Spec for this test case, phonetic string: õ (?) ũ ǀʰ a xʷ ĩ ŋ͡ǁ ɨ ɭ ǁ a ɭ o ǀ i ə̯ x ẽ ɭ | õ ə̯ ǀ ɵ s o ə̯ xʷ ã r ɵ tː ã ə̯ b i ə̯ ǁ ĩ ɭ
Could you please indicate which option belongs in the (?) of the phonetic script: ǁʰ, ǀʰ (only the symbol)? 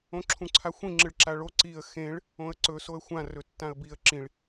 ǁʰ